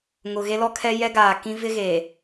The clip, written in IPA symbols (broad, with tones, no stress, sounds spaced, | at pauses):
ŋ ʊ˨ ɣ e˦ l ɔ˦ kʰ ɛ˦ j ɛ˦ ɡ aː˨ k ĩ˦ v ɪ˦ ɣ eː˨